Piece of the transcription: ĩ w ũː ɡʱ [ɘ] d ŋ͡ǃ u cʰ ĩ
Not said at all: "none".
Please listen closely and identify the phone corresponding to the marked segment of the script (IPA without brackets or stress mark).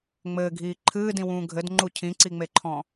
ɘ